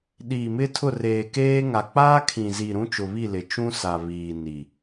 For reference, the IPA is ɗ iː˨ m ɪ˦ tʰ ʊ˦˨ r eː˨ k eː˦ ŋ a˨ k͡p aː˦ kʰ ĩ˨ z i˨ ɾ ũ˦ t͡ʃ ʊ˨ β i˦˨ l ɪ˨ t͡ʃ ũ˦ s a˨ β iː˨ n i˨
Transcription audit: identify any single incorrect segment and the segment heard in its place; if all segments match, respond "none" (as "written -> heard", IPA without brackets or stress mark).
none